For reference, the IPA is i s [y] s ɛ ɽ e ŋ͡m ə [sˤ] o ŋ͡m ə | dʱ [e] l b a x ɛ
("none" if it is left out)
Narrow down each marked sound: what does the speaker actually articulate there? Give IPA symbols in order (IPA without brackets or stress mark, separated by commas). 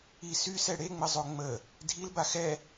y, zˤ, i